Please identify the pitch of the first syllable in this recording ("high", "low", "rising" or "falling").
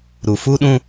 low